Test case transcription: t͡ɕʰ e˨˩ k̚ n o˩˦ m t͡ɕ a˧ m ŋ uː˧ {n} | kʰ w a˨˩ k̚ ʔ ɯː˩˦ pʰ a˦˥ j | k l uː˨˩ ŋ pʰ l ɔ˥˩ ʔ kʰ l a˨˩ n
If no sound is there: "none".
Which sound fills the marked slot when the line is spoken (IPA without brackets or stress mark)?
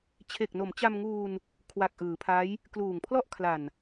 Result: n